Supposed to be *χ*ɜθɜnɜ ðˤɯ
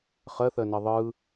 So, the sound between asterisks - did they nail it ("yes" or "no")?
yes